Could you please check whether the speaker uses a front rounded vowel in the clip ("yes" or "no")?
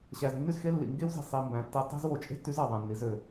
yes